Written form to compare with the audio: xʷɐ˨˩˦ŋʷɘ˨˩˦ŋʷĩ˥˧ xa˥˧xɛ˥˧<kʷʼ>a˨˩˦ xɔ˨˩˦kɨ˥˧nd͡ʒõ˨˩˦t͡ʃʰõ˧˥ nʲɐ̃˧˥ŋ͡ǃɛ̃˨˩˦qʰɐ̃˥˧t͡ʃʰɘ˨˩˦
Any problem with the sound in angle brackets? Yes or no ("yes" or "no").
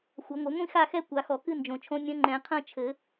yes